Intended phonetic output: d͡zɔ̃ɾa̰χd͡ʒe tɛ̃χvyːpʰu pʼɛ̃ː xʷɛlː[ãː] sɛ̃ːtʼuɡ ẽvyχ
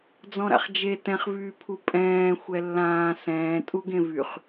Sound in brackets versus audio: correct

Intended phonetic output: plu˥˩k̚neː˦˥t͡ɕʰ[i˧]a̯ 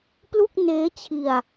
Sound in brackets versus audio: correct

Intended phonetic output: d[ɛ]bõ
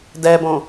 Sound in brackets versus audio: correct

